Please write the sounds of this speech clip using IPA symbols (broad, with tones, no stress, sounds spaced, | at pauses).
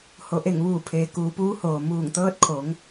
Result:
h o˩ ʔ e˧˩ ŋ ʋ uː˧˩ pʰ eː˩ k uː˩˧ p uː˧˥ h oː˩ m uː˧˩ ŋ t̪ ɤː˧ t̚ kʰ o˩˧ ŋ